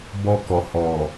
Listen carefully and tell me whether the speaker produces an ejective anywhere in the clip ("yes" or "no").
no